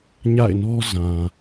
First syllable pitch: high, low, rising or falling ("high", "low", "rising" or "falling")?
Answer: falling